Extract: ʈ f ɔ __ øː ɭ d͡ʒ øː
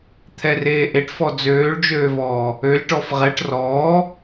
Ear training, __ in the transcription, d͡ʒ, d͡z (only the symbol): d͡z